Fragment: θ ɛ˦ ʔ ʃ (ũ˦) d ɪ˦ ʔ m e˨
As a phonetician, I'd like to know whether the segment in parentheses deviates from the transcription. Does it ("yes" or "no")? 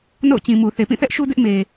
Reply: yes